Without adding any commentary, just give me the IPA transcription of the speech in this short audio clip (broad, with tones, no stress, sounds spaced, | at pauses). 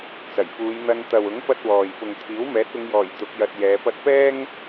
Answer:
t͡s ɐ˨˩ j f uː˨˧ j n̪ ɐ˧ n t̪ ɐ˨ w ʊ˨˥ ŋ p ɐ˥ t̚ w ɔː˨ j p ʊ˨ ŋ t̪ʰ iː˨˥ w m ɛː˨˥ t̚ ʊ˨˧ ŋ j ɔː˨˩ j t̪ ʊ˨˥ k̚ j ɐ˧ t̚ j ɛː˨˧ p ɐ˧ t̚ p ɛː˥ ŋ